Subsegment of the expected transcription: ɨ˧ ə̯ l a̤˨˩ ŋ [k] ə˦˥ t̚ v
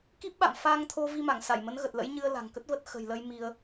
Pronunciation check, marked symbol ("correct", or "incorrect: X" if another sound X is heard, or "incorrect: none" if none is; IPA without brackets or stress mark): correct